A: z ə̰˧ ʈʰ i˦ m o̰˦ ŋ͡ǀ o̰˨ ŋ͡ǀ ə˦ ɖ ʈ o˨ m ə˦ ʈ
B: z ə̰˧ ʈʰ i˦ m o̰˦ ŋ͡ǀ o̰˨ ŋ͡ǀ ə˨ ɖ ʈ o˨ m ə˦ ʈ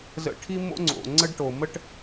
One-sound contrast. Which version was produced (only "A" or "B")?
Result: A